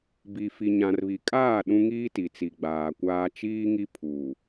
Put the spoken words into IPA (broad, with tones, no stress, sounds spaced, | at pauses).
b i˨ f i˨ ɲ ã˨ r β i˨ kʼ aː˦˨ ɗ ũ˦ ŋ iː˦ t i˨ t͡s i˨ ɡ͡b aː˨ kʷ aː˦ t͡ʃ iː˦ ŋ i˦ pʰ uː˨